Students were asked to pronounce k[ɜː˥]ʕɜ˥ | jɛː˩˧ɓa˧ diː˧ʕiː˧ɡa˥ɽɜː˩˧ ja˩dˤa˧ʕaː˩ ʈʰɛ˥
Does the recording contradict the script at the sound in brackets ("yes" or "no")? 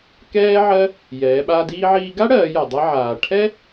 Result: yes